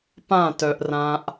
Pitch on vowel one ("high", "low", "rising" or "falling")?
falling